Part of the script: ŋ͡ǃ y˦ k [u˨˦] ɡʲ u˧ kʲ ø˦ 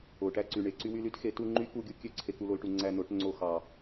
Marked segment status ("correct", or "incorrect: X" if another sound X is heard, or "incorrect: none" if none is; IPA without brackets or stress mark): incorrect: u˧